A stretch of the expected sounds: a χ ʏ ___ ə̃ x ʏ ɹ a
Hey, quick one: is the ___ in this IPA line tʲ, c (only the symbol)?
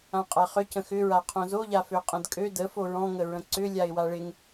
c